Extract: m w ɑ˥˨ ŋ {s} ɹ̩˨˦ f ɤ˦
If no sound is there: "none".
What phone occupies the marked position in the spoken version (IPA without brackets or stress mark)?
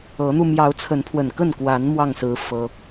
s